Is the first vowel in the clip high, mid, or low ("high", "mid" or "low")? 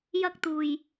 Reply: low